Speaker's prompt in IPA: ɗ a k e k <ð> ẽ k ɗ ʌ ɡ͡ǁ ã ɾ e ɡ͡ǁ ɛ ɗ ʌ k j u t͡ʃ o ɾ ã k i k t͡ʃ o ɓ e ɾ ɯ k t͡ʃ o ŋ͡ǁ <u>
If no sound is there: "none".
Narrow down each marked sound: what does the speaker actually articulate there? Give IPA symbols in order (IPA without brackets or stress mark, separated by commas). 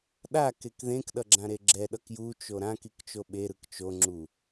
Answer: ð, u